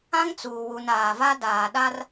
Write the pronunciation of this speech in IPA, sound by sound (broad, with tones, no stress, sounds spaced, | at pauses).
ã˦ ŋ t͡s uː˨ w u˨ n aː˨ v a˦ d aː˨ ɗ a˦ r